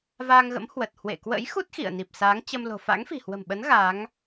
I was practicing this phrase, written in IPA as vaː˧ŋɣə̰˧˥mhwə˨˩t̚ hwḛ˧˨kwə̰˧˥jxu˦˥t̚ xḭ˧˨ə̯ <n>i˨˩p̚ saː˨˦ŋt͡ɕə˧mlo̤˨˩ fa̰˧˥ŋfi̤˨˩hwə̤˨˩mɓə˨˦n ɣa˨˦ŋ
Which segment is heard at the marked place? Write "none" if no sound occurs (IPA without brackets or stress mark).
n